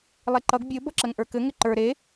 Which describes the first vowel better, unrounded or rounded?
unrounded